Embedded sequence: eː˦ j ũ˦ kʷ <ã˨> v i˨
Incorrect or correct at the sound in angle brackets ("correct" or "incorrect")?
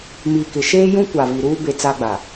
incorrect